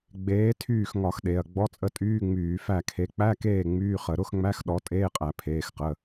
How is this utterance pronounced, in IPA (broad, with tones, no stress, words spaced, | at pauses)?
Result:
ɡ͡beː˨˥ tʰyː˦˨x ŋɒ˧˩˧x ɗe˩˧˩ɐ̯ ɡ͡bɔ˧˥˧t͡sʼə˦˨tʼyː˧˥˧ŋ͡myː˧˩˧ fæ˦˨kʰe˨˥ k͡pæ˧˥˧keː˦˨ ŋ͡myː˧˥˧χə˧˩˧ ɾʊ˧˥˧xŋ͡mæ˧˥˧x ɗɔ˨˥tʼeː˧˥˧qʼæ˧˩˧ pʰeː˩˧˩xqə˩˧˩